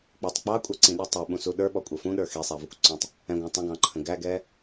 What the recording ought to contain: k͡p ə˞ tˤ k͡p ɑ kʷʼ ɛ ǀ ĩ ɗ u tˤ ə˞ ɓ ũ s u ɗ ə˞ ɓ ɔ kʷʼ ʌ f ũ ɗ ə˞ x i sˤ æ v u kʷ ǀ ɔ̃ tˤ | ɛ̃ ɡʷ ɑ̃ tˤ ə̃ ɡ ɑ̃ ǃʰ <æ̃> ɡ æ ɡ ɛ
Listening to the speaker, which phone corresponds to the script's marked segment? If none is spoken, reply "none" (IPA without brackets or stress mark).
ə̃